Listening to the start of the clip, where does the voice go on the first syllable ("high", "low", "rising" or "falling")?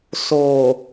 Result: low